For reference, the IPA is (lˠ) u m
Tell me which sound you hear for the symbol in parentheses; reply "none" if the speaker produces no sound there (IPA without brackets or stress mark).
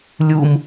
lʲ